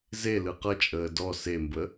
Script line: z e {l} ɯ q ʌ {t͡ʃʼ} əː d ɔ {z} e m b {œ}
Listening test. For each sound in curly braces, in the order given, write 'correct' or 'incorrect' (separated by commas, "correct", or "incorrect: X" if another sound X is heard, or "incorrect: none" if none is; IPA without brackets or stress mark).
correct, correct, incorrect: s, incorrect: ə